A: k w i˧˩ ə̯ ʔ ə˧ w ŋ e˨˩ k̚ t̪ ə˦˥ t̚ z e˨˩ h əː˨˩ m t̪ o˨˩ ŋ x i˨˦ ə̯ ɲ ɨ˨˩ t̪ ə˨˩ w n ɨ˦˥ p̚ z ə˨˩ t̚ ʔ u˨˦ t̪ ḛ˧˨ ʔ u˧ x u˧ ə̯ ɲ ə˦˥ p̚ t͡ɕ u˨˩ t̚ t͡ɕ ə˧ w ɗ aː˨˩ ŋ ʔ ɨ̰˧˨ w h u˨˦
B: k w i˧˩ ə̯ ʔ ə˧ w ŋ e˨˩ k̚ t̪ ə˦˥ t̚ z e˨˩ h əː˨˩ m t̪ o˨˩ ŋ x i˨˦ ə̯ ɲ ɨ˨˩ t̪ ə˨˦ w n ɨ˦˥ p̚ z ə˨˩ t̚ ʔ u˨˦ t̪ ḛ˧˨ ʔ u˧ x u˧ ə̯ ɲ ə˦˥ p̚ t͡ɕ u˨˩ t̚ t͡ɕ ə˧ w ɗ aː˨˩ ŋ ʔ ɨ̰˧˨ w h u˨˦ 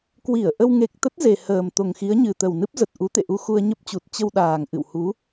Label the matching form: A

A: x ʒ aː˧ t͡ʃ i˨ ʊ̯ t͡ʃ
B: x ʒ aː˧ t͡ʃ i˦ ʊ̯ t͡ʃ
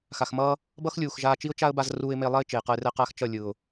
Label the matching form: B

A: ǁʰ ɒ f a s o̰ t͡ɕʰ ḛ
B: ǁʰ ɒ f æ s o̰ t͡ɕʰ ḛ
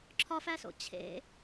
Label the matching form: B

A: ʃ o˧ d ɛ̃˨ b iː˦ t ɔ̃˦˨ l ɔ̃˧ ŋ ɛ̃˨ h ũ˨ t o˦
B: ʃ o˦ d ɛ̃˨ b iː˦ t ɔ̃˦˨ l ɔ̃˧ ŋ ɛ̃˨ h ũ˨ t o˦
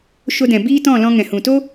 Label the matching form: A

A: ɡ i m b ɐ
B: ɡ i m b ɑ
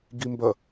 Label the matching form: A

